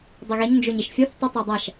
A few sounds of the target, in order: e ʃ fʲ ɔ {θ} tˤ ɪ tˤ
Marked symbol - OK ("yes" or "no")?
yes